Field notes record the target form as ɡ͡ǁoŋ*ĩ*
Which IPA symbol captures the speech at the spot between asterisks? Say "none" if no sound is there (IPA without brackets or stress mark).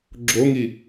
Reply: i